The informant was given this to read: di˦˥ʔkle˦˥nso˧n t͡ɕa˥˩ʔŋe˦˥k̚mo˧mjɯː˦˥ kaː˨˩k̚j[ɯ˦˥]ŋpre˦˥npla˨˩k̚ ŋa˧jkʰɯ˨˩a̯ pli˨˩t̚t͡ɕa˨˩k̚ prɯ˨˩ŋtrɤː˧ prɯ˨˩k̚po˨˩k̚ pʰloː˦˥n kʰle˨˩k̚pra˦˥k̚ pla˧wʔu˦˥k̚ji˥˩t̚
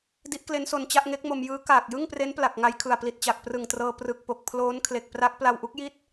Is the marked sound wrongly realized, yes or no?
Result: yes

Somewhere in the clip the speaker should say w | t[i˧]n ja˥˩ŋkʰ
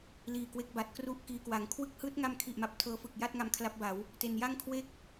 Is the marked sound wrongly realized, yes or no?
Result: yes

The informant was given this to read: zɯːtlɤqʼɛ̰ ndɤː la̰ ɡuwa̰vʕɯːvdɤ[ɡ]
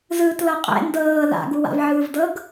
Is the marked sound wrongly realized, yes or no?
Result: no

